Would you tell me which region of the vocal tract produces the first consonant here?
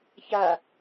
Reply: palate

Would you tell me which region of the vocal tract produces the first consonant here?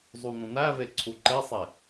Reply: tongue tip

